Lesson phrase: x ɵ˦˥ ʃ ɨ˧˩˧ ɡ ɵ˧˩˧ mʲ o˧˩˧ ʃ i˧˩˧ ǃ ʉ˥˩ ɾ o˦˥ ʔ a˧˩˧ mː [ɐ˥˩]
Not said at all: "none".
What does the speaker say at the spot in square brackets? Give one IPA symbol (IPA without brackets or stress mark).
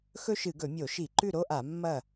ɐ˥˩